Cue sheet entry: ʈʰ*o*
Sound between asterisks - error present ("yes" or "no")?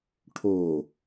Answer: no